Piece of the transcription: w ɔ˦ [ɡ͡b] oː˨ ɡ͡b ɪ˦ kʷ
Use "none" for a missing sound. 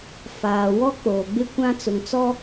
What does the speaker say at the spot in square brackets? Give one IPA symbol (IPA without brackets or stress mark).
k͡p